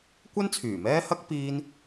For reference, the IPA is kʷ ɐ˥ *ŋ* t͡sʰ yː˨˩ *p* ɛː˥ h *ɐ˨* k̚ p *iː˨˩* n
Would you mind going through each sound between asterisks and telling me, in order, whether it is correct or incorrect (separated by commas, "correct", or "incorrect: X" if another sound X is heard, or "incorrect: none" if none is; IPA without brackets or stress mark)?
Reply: incorrect: n, incorrect: m, incorrect: ɐ˥, incorrect: iː˧